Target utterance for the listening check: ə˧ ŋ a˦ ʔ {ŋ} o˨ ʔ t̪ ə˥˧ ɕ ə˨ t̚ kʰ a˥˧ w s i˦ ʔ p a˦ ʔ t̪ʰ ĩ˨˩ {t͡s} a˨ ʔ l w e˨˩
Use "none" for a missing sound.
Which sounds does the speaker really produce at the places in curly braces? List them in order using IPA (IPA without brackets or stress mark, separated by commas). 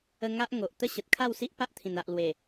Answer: ŋ, n